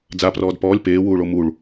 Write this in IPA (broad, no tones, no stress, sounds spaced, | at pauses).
d͡z a p r ɔː d p ɔː lʲ p eː w uː ɭ o m u ɭ